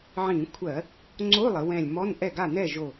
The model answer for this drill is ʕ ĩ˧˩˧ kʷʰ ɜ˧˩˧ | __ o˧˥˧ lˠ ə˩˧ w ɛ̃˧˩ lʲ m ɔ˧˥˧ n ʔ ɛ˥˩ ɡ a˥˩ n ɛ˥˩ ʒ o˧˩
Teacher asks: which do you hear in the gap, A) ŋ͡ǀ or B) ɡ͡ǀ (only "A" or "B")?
A